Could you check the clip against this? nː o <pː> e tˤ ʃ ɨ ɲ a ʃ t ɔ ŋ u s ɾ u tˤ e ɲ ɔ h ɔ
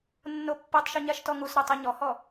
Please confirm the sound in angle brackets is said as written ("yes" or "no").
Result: yes